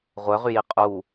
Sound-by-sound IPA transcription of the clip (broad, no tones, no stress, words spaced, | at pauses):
ʁʷœʁyji qʼu